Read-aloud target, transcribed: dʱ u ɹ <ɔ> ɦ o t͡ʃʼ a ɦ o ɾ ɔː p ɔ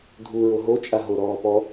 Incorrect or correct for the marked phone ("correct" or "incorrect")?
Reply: incorrect